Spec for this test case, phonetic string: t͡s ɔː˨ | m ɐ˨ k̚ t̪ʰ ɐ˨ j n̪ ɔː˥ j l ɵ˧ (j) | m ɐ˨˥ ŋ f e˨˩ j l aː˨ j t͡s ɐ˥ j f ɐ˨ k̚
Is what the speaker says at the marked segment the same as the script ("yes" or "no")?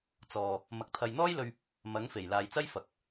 no